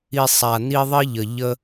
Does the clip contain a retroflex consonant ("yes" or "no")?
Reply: no